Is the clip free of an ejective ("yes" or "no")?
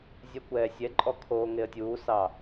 no